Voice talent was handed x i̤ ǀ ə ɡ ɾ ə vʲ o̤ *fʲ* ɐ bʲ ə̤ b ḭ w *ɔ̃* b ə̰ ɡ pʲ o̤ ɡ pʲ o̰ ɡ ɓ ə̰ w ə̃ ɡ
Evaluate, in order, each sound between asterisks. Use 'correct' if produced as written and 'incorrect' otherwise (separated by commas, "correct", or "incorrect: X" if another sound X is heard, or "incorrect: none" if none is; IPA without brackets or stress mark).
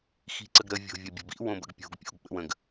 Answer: incorrect: vʲ, incorrect: õ